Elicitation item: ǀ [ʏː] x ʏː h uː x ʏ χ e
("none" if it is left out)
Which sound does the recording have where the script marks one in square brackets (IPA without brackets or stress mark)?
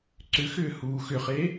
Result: ʏ